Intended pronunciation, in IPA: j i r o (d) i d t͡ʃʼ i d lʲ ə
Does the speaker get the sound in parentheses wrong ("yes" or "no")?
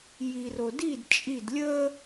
no